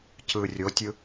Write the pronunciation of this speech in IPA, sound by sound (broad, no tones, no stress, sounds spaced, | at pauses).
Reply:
c ɯ rʲ o tʲ ɯ